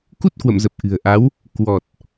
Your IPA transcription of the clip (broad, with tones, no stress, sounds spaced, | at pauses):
k u˦˥ t̚ k w ə̰˧˨ m z ə˨˩ p̚ ʔ ɨ̤˨˩ ə̯ ʔ a˨˦ w | k w ɔ˨˩ t̚